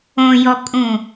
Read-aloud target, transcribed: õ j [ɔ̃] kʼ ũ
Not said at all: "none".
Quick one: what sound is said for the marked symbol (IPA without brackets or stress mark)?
ɔ